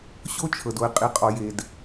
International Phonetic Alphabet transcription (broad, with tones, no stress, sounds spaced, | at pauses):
ɕ o˦ t͡ʃʰ ɤ˨ d o˨ ɪ̯ qʼ i˨ qʼ ɔ˨ j e˨ d